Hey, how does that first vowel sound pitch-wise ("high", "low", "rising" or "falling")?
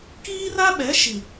high